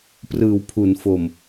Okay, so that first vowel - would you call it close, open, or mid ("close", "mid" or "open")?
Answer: close